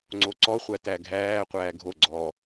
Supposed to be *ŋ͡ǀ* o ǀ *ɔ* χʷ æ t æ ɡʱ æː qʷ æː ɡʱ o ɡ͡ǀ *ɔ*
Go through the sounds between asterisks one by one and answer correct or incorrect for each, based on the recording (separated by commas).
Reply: correct, correct, incorrect